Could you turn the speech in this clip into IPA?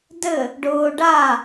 d ɘ | ɖ ʊː ɖ a

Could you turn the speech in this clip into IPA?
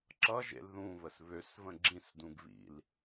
ǁ ʌ ʒ ḛ l ð ũ β ə s β ø s v ə̃ ɡ͡ǁ ĩ s d ũ ɡ β ḭ l

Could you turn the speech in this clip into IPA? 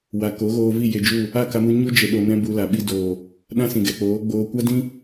w a˨ k o˨˦ ɣ oː˧ v i˦˨ j e˧ d͡ʒ u˦˨ | a˦˨ k a˧ m u˧ ɲ u˦ d͡ʒ e˨ ɗ o˨ n ɛ̃˧ b u˧ l a˨ ɓ i˧ d oː˨ | ɗ ã˦ s ĩ˨ ɡ ɛ˨ k͡p oː˨˦ ɡ͡b oː˧ kʷ a˦ d ĩ˦

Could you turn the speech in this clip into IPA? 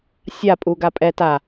sʲ a pʼ u ɡ a pʼ ɛ t a

